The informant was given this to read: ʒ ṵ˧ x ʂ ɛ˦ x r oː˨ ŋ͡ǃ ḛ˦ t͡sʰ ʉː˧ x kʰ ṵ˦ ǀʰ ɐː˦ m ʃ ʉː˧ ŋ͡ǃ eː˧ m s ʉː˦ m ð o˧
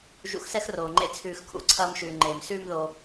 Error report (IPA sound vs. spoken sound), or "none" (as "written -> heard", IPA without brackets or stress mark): ʂ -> s